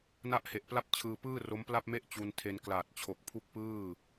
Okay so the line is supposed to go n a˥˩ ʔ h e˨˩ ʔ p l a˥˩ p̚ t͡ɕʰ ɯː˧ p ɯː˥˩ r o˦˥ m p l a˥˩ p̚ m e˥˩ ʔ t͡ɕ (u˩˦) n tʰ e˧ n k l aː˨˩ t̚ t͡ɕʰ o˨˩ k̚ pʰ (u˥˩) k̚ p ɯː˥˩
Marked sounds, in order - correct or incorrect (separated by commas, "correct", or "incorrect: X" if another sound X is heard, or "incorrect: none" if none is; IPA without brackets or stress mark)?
incorrect: u˧, correct